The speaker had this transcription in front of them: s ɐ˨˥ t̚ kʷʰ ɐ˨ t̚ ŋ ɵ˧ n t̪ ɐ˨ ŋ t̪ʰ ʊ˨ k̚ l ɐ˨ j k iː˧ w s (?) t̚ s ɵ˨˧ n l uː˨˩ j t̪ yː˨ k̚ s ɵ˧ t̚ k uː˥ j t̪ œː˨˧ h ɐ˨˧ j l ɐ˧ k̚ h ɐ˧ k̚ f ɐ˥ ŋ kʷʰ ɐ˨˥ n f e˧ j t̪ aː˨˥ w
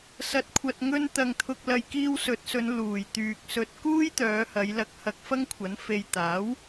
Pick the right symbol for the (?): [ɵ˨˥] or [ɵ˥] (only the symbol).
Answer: ɵ˨˥